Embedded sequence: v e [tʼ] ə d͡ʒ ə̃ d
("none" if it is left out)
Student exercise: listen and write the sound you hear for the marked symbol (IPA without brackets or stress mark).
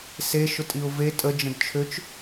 tʼ